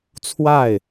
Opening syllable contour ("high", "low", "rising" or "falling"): falling